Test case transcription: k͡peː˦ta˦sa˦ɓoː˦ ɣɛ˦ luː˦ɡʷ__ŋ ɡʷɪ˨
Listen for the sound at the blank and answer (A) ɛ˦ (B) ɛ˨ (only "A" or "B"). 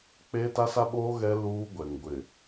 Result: B